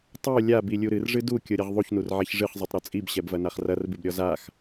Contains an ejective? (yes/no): yes